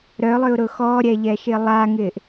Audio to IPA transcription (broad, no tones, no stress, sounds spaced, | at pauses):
ɾ œ lˠ ʏ ʊ̯ ɾ ʊ x ɔ ɾʲ ɛ ʎ ɛ ʃ ɪ lˠ a ŋ ɪː ʔ